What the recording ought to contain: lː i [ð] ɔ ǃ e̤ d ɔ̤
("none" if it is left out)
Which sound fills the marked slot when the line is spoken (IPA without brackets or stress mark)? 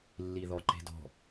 ð